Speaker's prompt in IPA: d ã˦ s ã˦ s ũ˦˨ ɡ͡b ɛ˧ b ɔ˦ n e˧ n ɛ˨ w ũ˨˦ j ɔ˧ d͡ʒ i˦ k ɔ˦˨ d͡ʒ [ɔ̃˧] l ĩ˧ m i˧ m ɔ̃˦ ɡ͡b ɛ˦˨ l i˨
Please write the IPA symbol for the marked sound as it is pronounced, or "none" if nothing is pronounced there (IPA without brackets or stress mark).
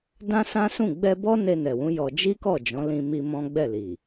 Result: ɔ̃˨˦